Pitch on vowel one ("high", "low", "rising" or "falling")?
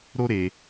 high